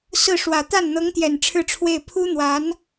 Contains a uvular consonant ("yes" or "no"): no